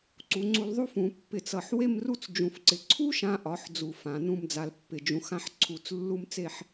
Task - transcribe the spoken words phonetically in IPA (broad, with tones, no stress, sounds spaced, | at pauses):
ǀ u˩˧ ŋ͡ǀ u˧ l ðˤ u˥ f ũ˩˧ pː ɪ˧˩ t͡s ʌ˧˩ ħ w e˥˧ m r u˥˧ t͡s d͡ʒ ũ˧˩ f ǀ ɪ˧ ǀʰ u˥ ʃ ã˧ ʔ ɒ˩˧ ħ d͡z u˧˩ f ã˩˧ n ũ˥˧ m d͡z a˧ l pː ɪ˧˩ d͡ʒ ũ˧ x ã˥ ħ ǀʰ u˧˩ t͡s lː u˥ m t͡s e˥˧ ħ